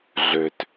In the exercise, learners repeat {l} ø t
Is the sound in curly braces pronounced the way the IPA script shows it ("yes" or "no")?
no